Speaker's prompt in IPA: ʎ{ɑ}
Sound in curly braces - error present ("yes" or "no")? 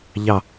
no